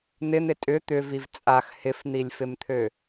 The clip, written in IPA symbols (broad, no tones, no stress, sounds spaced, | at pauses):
n̪ ɪ n̪ ɪ tʼ ʏ t̪ ʏ v i v t͡sʼ a x h ɪ f n̪ i lʲ f ɪ m t̪ʰ ø